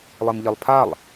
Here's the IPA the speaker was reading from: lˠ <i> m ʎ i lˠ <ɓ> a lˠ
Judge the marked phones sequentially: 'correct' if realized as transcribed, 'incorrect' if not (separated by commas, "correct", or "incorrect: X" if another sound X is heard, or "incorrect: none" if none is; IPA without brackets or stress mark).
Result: correct, incorrect: pʰ